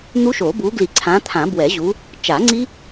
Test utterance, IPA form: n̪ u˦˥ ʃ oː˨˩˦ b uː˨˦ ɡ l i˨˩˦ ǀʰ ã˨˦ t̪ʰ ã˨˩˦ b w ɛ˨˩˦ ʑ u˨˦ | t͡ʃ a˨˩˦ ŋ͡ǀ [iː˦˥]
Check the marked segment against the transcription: incorrect: i˦˥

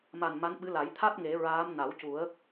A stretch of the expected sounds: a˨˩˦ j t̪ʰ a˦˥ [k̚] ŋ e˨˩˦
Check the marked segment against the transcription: incorrect: t̚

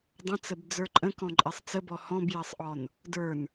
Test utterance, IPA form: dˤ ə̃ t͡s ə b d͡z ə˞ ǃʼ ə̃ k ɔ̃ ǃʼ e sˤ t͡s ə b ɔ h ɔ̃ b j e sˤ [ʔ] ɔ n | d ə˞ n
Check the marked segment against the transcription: correct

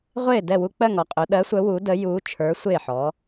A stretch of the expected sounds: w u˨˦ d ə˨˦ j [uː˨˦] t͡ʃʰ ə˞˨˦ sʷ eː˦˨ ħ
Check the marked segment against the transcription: correct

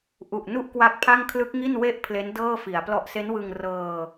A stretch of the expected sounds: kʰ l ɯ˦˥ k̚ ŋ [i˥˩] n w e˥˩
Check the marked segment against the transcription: correct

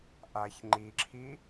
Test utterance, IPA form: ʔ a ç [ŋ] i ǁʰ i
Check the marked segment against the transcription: incorrect: ŋ͡ǃ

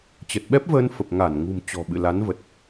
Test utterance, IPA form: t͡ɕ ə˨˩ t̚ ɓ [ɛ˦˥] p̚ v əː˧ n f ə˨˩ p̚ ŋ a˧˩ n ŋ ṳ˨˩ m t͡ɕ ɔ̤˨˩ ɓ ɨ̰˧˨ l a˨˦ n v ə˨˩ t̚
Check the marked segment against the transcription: correct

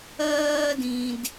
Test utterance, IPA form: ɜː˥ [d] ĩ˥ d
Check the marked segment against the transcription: correct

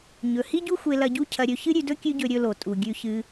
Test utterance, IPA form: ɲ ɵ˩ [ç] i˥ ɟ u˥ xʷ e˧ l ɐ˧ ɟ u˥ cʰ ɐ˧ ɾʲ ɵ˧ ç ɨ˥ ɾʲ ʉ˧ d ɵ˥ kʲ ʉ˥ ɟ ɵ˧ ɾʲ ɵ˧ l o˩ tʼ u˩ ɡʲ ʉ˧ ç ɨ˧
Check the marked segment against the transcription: incorrect: h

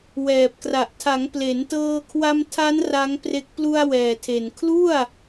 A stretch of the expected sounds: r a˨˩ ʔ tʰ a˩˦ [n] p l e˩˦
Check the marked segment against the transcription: incorrect: ŋ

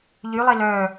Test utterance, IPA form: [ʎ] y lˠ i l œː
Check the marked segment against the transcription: correct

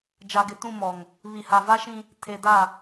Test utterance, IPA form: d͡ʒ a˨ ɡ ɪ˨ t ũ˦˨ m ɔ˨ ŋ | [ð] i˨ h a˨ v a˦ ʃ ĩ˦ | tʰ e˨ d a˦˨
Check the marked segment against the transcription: incorrect: β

